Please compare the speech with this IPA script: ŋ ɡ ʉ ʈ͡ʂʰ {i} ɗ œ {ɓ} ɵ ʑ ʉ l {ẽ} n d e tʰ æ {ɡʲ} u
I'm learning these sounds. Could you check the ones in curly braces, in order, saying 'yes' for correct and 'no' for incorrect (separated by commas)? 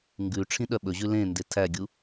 no, yes, yes, yes